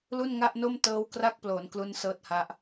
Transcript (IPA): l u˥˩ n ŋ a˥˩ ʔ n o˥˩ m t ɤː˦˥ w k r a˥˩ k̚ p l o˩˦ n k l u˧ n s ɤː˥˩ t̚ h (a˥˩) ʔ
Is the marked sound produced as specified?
no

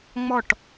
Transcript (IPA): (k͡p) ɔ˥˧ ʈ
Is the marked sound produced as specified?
no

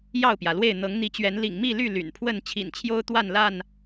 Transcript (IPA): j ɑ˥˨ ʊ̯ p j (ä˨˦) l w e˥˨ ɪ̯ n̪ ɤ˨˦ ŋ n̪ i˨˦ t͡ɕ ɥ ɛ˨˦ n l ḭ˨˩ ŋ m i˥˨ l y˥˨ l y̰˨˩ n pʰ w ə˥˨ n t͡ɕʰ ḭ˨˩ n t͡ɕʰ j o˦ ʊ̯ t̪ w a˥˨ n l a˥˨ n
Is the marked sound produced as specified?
no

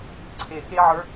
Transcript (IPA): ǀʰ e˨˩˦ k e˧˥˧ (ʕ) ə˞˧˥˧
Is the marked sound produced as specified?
yes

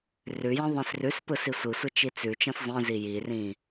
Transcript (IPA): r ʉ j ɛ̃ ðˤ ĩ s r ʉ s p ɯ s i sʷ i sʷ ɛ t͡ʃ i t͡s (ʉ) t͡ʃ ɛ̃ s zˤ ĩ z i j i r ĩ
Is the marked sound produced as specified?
yes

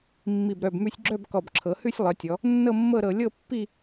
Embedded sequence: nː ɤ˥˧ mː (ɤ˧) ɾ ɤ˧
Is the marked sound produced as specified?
no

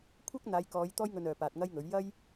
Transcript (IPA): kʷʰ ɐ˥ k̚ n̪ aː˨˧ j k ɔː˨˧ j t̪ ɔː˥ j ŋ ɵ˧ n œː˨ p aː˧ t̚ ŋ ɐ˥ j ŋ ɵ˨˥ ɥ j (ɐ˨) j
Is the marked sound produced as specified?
no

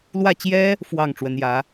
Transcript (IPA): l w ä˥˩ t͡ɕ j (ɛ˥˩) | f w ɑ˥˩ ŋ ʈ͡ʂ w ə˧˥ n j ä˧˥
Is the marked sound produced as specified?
no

